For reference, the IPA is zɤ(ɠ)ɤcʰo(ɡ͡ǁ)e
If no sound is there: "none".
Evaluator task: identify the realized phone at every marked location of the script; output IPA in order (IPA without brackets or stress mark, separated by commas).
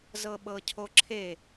ɓ, ǁʰ